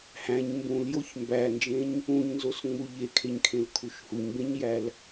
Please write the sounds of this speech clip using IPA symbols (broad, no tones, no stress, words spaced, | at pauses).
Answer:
hæ̃ɲ mbũljoç mbænd͡ʒẽɲ | ũɲnzosŋ͡mu ʎekʰeɲkʰẽlkʰuʃ huɲbẽɲjæl